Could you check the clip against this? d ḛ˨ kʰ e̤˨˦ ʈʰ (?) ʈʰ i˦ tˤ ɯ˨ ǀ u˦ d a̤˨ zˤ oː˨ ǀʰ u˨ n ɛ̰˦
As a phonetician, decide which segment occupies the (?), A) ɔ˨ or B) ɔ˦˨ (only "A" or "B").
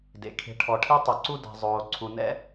A